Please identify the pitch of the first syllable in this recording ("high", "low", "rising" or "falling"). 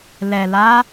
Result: low